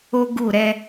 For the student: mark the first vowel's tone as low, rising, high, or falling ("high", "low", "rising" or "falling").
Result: high